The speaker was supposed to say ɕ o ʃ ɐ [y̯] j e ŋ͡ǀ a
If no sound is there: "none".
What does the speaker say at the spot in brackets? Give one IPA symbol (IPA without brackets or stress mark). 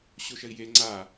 i̯